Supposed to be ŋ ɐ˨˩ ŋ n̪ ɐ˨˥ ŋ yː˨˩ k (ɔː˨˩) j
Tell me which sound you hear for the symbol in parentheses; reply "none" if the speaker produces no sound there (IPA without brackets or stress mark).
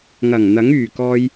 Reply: ɔː˧